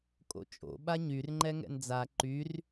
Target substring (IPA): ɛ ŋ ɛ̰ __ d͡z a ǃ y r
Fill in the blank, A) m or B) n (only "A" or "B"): B